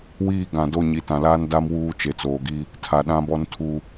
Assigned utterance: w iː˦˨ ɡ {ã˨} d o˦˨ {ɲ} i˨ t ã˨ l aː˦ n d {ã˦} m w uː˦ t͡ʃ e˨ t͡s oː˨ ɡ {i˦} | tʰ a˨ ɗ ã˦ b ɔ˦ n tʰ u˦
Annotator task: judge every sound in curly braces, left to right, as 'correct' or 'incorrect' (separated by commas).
correct, correct, incorrect, correct